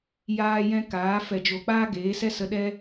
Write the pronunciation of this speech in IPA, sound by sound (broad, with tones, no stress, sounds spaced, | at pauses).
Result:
j aː˧ j ɛ̃˧ k aː˨˦ f ɛ˧ d͡ʒ o˧ k͡p aː˦ ɡ eː˨˦ s ɛ˦ s ə˧ ɗ ɛ˦